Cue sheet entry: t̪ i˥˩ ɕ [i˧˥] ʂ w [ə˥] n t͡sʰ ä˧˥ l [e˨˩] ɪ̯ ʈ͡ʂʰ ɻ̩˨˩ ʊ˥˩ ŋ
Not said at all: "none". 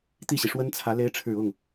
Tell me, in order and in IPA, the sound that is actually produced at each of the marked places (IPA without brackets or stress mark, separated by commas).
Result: i˩, ə˥, e˧˥